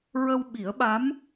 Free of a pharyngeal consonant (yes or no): yes